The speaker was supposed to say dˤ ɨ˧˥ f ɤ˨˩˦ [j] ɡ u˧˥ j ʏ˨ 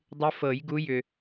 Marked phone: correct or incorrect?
correct